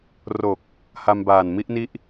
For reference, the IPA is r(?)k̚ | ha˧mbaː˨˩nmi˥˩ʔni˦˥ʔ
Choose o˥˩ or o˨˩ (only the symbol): o˨˩